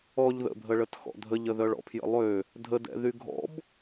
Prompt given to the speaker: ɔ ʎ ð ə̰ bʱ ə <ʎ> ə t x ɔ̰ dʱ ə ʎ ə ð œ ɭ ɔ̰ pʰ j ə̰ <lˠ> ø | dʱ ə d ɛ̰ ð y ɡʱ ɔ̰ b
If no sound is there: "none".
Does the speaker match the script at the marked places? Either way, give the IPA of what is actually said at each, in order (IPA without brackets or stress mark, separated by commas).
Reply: ɭ, lˠ